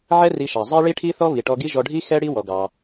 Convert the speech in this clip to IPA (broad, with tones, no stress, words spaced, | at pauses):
ʕɛ˦ ri˧ʃɑ˨ zˤɛ˦ɭi˦ʈʰi˦θɔ˦ βi˨ʈɔ˧ɡi˦ ʒɔ˧ɖʱi˦ xɛ˦ɽi˦ wɔ˧ɡɑ˧